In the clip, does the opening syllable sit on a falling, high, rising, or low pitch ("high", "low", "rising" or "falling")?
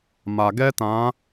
low